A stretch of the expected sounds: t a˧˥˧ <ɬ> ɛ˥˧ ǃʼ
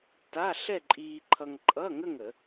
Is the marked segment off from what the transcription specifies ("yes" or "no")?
no